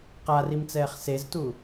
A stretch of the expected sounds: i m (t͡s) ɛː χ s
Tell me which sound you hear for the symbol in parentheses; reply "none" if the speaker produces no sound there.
t͡s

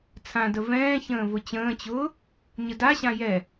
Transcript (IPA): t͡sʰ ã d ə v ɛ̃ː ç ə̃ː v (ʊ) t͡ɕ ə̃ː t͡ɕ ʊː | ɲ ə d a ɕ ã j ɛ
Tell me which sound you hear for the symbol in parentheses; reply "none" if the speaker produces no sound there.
ʊ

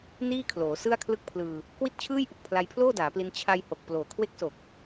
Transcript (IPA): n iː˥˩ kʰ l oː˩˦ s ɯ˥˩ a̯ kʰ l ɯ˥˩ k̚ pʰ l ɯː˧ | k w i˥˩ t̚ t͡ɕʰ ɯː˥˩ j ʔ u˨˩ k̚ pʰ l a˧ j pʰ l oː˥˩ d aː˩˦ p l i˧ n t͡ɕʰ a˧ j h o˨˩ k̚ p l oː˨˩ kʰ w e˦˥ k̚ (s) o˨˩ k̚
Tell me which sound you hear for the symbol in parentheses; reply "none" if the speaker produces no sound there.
s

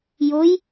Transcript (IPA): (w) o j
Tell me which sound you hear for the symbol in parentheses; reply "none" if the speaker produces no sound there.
j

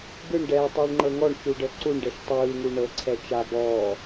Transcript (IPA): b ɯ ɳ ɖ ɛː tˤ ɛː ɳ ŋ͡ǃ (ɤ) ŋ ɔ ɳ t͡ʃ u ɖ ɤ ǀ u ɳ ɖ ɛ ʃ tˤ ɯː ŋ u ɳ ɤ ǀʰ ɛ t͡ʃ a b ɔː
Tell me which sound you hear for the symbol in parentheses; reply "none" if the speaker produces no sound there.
ɤ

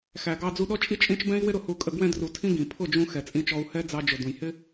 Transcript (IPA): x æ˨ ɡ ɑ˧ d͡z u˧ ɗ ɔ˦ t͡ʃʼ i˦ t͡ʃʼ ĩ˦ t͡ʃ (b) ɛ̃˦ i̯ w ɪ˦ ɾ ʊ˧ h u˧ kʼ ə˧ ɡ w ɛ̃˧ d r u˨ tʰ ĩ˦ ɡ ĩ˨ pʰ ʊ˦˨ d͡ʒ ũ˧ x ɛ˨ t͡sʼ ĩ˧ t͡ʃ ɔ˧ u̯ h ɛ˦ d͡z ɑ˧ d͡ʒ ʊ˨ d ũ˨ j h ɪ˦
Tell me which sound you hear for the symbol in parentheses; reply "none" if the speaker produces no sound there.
b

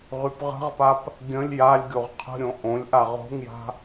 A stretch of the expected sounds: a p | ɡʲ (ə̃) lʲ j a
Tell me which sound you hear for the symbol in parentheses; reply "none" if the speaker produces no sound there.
ə̃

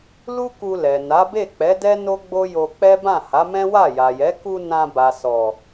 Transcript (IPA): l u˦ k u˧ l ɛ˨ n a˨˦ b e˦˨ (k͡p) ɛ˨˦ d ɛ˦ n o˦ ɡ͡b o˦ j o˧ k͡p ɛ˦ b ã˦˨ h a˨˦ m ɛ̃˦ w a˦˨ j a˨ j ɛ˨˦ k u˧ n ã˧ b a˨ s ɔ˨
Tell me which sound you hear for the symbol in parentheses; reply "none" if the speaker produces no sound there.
k͡p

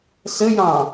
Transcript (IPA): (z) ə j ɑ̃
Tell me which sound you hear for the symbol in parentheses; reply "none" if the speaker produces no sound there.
s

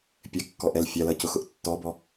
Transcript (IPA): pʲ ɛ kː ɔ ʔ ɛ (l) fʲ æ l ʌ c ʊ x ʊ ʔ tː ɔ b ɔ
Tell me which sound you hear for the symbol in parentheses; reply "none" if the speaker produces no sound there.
l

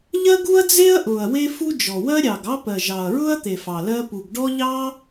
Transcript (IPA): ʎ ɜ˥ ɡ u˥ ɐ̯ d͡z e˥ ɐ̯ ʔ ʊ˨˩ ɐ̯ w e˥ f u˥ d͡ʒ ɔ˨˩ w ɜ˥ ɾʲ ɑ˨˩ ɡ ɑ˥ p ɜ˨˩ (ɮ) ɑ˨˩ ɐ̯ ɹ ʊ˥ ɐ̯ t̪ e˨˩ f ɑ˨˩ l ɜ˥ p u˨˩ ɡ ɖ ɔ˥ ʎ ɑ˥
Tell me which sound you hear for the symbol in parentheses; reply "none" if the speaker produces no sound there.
ʒ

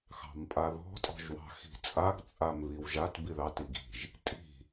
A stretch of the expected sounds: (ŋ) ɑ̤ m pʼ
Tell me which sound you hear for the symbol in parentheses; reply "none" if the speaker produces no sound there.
x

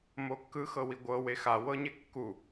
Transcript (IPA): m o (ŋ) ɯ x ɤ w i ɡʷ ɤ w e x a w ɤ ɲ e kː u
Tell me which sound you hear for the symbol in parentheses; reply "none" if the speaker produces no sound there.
kː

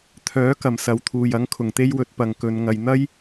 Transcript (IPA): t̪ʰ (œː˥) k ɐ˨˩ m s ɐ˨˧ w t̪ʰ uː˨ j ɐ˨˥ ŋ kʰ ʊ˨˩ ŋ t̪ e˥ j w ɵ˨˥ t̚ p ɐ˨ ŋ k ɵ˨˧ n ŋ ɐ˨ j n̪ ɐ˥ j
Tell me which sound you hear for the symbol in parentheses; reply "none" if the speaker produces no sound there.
œː˨˥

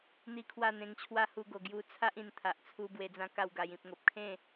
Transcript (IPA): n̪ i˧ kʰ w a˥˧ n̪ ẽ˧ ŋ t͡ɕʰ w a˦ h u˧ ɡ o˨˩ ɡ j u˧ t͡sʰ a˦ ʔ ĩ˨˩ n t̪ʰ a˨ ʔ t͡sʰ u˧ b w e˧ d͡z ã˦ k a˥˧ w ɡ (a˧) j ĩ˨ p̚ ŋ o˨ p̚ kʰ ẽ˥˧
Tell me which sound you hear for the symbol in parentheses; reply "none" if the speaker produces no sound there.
a˧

